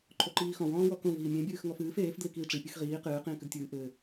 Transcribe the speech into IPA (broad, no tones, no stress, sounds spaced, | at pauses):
ǃʰ o ǃ iː x ɔ̃ w ɔ̃ː w ɔ k õ v iː mʲ ẽ bʲ ɨː x ŋ ɔ f ɨː f eː f d l i k iː ʈ͡ʂ i pʲ ɨ x ʁ iː q ɨː q ĩː k ɨ d tʲ ɨː ʔ ɘ